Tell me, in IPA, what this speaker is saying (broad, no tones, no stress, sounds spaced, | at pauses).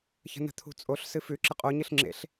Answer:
ç ə̤ n ə̤ t̪ʰ ṳ t͡sʼ o ɬ s ɨ f ʉ ǁ ə qʼ o ɲ ɨ ɬ ŋ͡ǁ ḛ ɬ